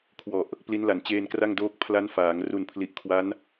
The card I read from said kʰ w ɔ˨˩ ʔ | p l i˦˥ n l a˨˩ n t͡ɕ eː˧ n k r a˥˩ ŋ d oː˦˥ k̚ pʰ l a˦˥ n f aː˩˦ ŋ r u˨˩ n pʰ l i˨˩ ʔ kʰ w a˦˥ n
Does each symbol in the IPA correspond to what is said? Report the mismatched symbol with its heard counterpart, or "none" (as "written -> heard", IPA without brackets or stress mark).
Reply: none